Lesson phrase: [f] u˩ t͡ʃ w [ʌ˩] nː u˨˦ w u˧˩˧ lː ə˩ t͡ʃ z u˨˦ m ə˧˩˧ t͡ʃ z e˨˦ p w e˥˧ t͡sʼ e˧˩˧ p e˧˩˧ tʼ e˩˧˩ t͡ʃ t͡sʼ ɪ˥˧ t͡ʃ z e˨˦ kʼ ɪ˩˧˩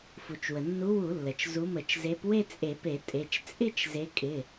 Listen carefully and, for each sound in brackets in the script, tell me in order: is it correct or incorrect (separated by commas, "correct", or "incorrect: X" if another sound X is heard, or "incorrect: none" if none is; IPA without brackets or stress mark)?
correct, incorrect: ə˩